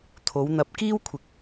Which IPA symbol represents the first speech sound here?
t̪ʰ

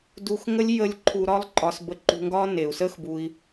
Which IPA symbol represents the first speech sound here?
d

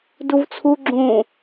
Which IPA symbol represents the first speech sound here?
d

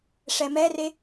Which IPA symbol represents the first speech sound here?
ʂ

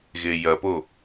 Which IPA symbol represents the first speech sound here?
ɣ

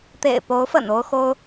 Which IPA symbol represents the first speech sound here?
t̪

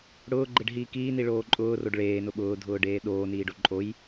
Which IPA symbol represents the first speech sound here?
ɽ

